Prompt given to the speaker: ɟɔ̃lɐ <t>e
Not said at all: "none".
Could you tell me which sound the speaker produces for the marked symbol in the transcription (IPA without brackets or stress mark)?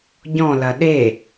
ɗ